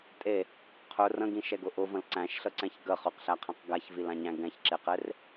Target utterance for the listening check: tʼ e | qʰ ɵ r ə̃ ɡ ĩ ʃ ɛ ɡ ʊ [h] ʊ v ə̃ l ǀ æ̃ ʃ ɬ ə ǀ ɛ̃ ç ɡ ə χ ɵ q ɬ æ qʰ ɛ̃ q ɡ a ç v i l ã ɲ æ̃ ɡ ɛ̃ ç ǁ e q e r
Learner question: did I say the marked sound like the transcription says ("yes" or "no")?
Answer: no